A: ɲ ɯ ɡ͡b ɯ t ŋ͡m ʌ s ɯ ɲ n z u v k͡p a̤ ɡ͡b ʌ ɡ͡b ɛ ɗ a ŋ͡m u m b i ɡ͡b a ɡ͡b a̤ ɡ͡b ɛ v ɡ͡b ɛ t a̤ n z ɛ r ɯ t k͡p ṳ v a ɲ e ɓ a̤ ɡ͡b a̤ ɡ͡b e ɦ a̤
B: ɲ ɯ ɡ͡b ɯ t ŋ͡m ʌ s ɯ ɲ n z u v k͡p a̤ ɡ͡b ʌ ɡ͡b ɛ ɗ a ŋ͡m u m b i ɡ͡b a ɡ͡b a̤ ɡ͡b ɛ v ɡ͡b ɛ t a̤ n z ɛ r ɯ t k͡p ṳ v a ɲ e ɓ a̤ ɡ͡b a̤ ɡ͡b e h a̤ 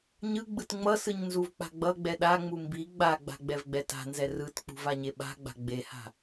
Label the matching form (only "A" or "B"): B